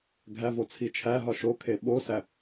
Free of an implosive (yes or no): no